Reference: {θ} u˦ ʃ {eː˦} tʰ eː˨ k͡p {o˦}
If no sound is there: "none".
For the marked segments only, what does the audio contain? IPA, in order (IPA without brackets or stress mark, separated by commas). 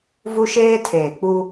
v, eː˦, u˦